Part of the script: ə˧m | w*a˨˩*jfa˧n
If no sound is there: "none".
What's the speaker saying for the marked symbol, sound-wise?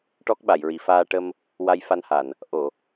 a˧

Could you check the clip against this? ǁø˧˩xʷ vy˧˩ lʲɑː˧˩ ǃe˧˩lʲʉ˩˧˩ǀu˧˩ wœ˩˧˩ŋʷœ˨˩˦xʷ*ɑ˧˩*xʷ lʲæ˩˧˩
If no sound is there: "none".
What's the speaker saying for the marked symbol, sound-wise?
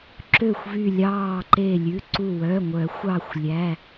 ɑ˧˩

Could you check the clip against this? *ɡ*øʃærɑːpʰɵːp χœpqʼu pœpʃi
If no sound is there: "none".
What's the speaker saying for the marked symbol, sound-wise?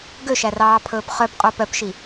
ɡ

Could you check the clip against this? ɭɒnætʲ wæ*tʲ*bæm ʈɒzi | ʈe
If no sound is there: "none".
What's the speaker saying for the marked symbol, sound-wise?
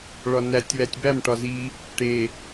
tʲ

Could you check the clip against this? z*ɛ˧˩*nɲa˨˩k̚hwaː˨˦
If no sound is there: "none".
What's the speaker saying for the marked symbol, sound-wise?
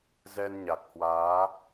ɛ˧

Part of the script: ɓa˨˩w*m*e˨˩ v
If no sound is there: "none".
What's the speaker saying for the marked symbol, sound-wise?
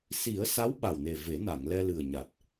n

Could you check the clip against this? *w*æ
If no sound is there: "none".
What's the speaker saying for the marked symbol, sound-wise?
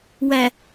w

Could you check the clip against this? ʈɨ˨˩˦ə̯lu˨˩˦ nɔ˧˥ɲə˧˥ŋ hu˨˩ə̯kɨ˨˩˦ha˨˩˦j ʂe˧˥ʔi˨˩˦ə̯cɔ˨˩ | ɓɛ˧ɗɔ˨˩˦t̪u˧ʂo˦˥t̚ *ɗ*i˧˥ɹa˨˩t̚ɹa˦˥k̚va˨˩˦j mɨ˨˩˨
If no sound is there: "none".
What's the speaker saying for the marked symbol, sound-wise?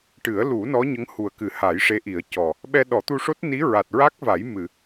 n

